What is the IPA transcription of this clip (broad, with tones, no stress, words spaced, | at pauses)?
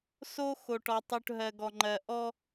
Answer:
so˦ xo˨ʈɔ˨tˤu˨ʈɦɜ˨ ɡɔ˨ŋ͡ǃɜ˨ ʔɔ˦